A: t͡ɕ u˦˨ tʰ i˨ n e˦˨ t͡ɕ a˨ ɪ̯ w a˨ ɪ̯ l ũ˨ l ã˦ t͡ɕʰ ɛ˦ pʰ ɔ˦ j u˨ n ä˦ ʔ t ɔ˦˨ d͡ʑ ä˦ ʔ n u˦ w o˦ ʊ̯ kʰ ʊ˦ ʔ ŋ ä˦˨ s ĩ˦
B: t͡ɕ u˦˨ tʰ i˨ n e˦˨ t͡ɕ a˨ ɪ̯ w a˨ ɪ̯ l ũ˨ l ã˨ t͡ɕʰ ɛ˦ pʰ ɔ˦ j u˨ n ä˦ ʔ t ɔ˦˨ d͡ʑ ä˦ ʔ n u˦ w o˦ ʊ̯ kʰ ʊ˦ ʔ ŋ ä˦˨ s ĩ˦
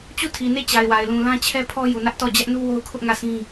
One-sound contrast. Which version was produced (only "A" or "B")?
A